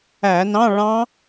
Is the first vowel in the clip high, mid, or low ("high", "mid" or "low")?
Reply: low